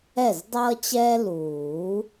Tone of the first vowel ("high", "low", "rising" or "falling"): falling